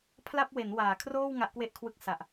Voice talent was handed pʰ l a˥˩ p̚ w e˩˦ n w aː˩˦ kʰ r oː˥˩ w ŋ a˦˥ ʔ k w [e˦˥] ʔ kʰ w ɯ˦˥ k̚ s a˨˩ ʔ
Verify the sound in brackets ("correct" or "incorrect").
incorrect